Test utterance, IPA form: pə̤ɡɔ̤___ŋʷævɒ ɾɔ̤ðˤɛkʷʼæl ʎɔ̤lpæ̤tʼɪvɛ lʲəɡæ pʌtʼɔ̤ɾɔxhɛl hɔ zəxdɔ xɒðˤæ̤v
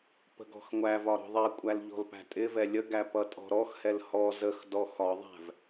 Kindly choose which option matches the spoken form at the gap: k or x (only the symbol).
x